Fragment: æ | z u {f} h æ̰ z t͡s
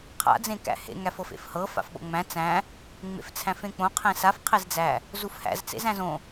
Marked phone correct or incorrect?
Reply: correct